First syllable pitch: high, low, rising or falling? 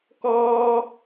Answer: high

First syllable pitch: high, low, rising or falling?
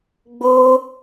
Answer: high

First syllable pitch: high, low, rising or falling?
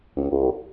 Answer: low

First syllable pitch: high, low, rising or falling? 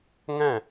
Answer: falling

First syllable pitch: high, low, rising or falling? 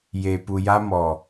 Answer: low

